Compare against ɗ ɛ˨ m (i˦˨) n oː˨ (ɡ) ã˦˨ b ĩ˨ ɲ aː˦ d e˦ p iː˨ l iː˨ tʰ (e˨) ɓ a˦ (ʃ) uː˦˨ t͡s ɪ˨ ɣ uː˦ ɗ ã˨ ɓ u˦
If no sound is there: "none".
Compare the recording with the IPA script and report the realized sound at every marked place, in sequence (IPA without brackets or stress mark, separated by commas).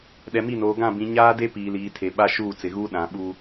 i˦˨, ɡ, e˨, ʃ